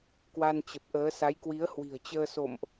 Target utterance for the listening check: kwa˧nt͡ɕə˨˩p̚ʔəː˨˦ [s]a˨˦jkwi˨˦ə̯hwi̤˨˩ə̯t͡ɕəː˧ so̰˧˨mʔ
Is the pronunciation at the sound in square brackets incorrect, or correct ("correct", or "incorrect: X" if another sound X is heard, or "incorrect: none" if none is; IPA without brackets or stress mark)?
correct